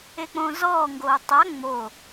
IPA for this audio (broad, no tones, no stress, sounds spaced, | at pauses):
e k͡p õː z ɔː ŋ ɡ oː tˤ a ŋ͡m o